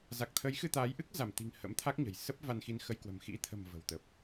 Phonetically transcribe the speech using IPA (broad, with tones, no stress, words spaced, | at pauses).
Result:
za˨˩k̚t̪ʰə˨˦jxɨ˧ t̪aː˨˦jʔɨ˦˥k̚ za˧˩mt̪i̤˨˩ŋ hə̰˧˥mt̪ʰa˦˥k̚ɲə̤˨˩jsə˦˥p̚ va˧nxi˧nxə˧j kwə̤˨˩mxḭ˧˥ t̪ʰə̤˨˩m və̤˨˩wt̪ə˨˩p̚